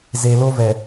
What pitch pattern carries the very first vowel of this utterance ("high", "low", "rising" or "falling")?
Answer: low